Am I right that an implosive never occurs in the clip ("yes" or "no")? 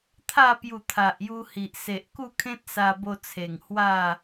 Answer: yes